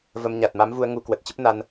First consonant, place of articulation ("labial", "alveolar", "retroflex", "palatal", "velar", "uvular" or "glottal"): labial